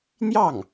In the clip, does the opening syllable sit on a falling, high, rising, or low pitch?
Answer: falling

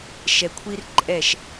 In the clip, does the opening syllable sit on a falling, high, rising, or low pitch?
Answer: low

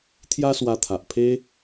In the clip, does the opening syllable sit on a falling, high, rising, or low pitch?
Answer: high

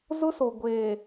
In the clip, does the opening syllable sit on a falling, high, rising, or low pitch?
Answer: high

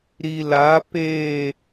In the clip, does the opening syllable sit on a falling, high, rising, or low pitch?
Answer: low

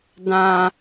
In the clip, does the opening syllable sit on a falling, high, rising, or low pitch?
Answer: low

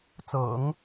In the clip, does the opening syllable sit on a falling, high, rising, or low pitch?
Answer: low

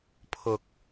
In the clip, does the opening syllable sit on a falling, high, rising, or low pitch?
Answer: high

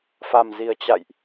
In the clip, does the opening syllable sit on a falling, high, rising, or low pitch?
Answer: low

